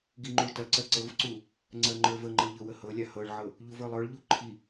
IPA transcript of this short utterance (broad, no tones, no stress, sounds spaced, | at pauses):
ɡ i ŋ͡ǃ u ɭ t ɐ ǀ ɜ ǀ ɤ v ǀ u | ŋ͡ǀ ɜ ŋ͡ǃ ə˞ v ə ŋ͡ǃ ɤ ʎ ɤ w ə h ɤ lʲ a h ɤ ɭ ʕ ɤ | ʎ u v ə˞ lˠ ə˞ ɭ ʎ u ǃʰ i